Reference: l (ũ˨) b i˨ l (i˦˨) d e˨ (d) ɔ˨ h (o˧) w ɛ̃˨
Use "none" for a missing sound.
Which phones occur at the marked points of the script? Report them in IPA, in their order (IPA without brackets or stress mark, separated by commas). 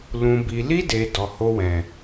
ũ˨, i˧, d, o˧